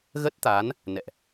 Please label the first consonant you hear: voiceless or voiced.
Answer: voiced